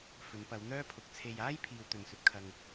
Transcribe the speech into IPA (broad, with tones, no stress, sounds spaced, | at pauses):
f ɵ˨˧ n p ɐ˨˧ w n̪ œː˥ pʰ ʊ˨˥ k̚ t͡sʰ e˨ j aː˥ j pʰ iː˥ w t̪ ɵ˧ n s ɵ˥ t̚ kʰ ɐ˥ ŋ